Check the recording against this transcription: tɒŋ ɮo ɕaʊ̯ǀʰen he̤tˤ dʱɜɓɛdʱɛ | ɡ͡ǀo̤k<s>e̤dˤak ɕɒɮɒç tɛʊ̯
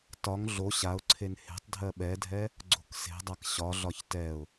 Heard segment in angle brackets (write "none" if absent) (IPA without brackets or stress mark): s